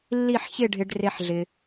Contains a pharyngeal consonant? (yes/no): yes